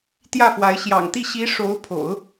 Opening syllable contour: falling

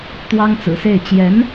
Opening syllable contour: high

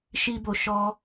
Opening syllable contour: high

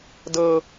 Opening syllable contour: high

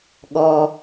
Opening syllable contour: low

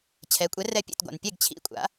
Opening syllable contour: rising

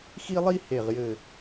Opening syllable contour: high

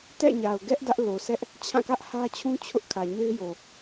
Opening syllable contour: falling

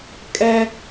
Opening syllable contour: high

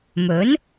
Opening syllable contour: rising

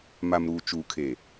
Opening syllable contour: low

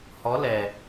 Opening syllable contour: rising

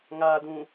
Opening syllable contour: low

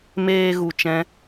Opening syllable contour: low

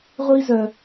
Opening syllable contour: high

